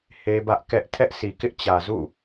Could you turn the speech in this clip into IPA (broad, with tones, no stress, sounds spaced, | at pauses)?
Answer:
h e˦ b ä˦ ʔ k ɛ˦ ʔ tʰ ɛ˦ ʔ sʰ i˨ k ɪ˦ ʔ t͡ɕ ä˨ z ṵ˦˨